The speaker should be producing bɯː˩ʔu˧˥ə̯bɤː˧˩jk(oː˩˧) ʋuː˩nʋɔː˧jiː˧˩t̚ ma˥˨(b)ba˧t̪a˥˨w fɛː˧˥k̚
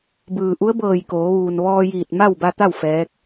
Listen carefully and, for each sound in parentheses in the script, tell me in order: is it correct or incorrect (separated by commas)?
correct, incorrect